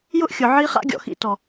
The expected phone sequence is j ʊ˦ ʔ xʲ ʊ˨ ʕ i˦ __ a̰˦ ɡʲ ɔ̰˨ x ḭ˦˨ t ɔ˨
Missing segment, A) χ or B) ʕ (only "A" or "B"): A